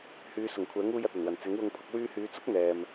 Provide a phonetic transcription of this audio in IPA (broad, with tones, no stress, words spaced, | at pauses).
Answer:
hyː˨˧ sʊ˨˩ŋkʷʰɛː˨˥ŋuː˧j ɐ˨t̚ɐ˨˩nwɐ˨˩n t͡sɪ˨˥ŋwʊ˧ŋpʰʊ˧k̚ wyː˧hyː˨˧ t͡sʊ˥k̚ n̪ɛː˨m